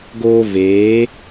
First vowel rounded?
yes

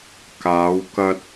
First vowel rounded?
no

